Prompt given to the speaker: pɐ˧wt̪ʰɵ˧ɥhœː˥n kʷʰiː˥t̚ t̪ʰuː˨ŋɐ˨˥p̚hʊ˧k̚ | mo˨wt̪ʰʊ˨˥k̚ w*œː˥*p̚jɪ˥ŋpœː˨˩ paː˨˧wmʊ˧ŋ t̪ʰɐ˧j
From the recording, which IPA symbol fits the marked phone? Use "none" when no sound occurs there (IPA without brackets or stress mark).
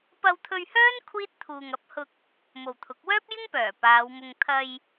œː˥